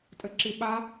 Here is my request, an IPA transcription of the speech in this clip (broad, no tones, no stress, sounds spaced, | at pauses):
tʼ ɘ ǁ i ɓ a